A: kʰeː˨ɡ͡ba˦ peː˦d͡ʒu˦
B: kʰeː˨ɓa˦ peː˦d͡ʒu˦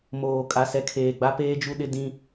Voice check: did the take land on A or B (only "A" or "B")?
A